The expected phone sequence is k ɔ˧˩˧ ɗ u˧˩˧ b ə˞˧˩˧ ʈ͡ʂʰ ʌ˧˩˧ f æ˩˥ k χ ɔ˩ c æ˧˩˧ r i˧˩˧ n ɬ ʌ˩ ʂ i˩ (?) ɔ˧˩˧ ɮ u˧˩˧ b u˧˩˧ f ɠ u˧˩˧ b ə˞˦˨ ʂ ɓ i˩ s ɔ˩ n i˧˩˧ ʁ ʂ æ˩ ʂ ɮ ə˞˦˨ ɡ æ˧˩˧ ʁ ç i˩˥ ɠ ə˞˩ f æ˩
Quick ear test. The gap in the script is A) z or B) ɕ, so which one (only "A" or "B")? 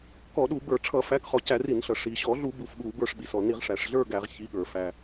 B